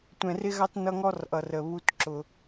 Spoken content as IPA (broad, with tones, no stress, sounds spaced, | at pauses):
tʷ ɛ̃˨ r ɪ˦ ɣ ɑ˦ t n ʌ˦ ŋ ɔ˦ r ʔ ʌ˨ r ə˨ β u˦ t ǁ ʊ˧